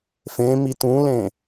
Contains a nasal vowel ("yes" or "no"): yes